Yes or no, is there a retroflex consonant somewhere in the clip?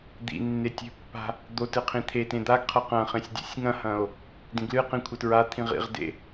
no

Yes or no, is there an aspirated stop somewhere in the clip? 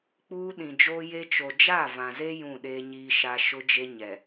no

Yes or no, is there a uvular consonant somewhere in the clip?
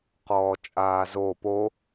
yes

